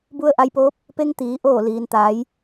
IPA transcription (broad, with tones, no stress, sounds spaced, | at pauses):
b u˧ ə̯ ʔ a˧ j p oː˧˥ p̚ | p e˧ ŋ t̪ iː˩˧ ʔ oː˧˩ l iː˩ n t̪ aː˩˧ j